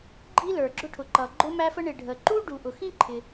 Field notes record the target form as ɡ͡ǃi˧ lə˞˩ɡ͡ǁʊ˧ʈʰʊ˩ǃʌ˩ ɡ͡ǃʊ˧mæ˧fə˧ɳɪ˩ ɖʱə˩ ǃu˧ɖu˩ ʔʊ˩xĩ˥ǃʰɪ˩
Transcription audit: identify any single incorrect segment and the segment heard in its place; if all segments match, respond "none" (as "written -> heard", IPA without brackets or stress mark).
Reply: none